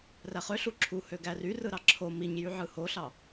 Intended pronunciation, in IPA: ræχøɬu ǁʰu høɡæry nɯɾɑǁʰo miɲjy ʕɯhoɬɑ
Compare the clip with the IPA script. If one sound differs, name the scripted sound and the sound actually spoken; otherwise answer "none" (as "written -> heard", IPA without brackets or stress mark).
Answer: n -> r